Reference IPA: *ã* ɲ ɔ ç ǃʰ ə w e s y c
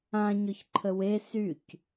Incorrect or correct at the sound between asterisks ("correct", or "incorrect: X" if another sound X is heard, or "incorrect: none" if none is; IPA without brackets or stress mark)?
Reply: correct